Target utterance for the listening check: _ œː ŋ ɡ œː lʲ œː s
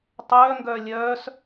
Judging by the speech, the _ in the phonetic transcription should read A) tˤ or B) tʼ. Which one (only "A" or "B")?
A